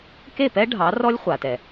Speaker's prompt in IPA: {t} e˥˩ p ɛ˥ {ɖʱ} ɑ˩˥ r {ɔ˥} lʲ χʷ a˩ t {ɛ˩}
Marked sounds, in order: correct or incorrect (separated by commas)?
incorrect, correct, correct, correct